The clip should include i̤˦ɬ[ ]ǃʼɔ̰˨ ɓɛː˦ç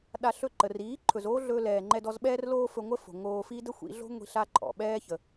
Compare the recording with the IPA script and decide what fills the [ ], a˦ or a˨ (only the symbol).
a˦